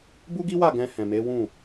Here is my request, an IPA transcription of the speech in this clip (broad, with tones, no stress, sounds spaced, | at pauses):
b u˦ ɡ i˦ w a˦˨ ɡ ɛ̃˧ h ɛ̃˨ m e˨˦ w ũ˦˨